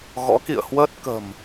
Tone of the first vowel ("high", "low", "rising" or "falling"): rising